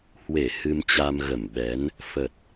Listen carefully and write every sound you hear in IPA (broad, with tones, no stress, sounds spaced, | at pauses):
h w e˧˩ h ɨ˧ m t͡ɕ a˧ m ɣ ə˧˩ m ɓ ɛ˨˦ n | f ə˨˩ t̚